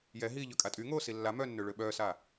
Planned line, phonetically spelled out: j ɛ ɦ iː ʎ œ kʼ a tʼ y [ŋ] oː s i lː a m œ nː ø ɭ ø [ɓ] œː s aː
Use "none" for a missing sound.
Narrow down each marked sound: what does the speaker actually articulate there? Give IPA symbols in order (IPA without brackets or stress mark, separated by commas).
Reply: ŋ, ɓ